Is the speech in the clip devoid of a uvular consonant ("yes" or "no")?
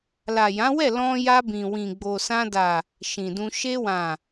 yes